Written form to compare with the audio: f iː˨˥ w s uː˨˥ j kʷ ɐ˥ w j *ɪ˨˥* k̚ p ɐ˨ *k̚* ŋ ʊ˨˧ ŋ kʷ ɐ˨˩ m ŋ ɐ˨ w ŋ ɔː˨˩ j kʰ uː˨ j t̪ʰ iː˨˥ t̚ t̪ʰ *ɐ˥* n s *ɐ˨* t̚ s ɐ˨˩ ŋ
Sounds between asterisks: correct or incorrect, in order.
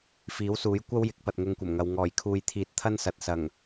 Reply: correct, incorrect: t̚, correct, correct

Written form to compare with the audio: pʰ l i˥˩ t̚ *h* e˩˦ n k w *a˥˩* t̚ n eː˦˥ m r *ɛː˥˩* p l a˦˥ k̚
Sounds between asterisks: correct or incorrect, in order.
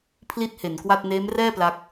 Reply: correct, correct, correct

